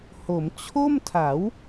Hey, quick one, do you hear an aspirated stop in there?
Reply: yes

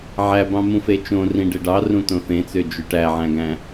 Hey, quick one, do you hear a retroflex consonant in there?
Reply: yes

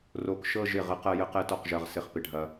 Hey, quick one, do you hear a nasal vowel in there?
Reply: no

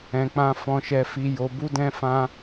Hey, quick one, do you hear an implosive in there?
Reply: no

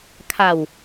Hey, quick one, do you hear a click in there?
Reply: no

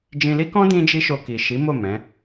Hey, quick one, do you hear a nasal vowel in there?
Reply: yes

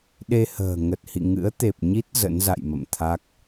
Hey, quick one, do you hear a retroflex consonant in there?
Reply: no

